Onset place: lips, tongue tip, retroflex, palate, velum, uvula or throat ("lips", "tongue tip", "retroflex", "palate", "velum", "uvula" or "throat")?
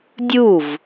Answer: tongue tip